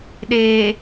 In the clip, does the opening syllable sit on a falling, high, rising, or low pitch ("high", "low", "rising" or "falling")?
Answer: low